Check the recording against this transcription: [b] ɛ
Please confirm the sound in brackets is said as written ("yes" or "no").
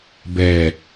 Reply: yes